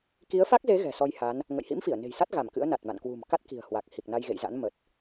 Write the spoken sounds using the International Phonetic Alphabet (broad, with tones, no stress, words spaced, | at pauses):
ki˨˦ə̯fa˦˥k̚ze˨˦ ɣɛ̤˨˩sɔ˧jha˨˦n | ŋə̰˧˨jhḭ˧˥mfi˧˩ə̯ ne̤˨˩jsa˦˥t̚ ɣa˧˩mkɨ̰˧˥ə̯na˨˩t̚ma̰˧˨n kwṳ˨˩mka˦˥t̚ ki̤˨˩ə̯hwa˨˩k̚ hi˨˩k̚na˧jɣḛ˧˨jza̰˧˥n mə˨˩t̚